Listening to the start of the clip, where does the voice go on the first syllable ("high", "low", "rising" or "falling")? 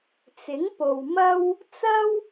rising